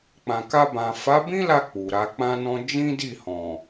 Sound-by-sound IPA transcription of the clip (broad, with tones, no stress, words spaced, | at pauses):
k͡pã˨ka˧bã˨ fa˨˦bĩ˦la˧ k͡pu˨ɾa˧k͡pã˦nɔ̃˦ d͡ʒĩ˦di˦˨hɔ̃˨